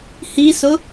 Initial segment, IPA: h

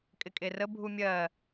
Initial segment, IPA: kʼ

